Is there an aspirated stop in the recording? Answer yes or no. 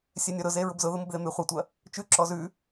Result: no